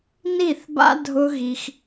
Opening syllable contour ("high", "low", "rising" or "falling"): falling